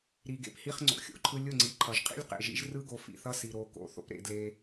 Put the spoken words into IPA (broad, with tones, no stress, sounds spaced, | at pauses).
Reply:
ɾ i˨ ɡ ḛ˧ p h i˧ χ ŋ͡ǀ o̰˨ xʲ o̰˨ ǃʰ ɯ˧ lʲ ʊ˦˨ ŋ͡ǀ i˨ ǃʰ ʌ˨ ʒ qʰ ḭ˦ lʲ q ḛ˨ ʒ ḭ˧ ʒ r ɯ˦ ɡ o˨ f ḭ˨ θ ʌ˦ s i˨ ɾ o˨ k o̰˨ θ o̰˧ p ɾ ḛ˨ d l e˧